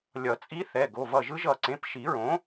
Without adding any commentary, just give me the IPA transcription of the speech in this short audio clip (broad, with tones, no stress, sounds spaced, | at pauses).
lʲ ʌ˨˩˦ t͡sʼ i˧˥ θ ɛ˩˧˩ ɡ o˩˧˩ v ʌ˧˩ ʒ ɯ˧˥ ʒ ʌ˧˩ ǀ ẽ˩˧˩ p ʃ i˨˩˦ ɹ õ˩˥